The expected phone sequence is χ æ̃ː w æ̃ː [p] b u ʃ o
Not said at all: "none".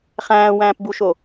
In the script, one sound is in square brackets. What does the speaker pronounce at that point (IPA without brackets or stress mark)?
p